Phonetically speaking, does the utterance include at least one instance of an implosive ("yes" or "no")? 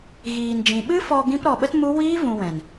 yes